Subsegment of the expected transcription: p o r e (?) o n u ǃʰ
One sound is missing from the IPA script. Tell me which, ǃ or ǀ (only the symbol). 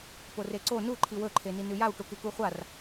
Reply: ǀ